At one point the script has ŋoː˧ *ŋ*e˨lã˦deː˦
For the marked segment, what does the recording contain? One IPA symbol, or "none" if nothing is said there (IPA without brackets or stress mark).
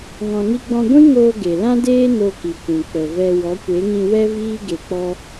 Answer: ɡ